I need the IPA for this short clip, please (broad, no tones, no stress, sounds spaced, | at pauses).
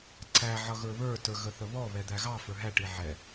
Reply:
ǀ æ ʕ ʌ ɣ ə˞ β ə˞ t ə˞ ɣ ə θ ə β ɔ β ɛ d̪ æ ɣ ɑ f ə˞ ɦ æ ʈ i ʕ ɛ